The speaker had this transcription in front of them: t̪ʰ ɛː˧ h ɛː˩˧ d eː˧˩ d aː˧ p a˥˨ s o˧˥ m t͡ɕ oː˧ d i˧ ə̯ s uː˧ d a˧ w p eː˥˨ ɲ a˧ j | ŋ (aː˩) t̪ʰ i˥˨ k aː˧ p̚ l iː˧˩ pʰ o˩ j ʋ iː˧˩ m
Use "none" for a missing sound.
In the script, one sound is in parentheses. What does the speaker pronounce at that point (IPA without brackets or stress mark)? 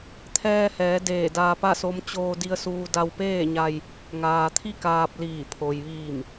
aː˩